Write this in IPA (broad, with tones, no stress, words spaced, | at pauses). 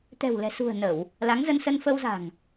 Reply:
t̪ɛ̤˨˩wlɛ̤˨˩sṳ˨˩ə̯ nə˧˩˨w | la˨˦ŋzə˧nsə˧n fə˧wza̤˨˩ŋ